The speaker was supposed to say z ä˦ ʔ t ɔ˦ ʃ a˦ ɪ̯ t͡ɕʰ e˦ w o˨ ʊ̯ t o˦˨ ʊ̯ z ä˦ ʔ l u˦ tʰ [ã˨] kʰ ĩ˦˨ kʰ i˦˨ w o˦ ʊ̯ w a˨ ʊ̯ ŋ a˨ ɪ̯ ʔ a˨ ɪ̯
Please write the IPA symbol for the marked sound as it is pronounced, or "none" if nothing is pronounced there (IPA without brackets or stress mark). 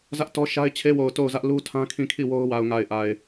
ã˦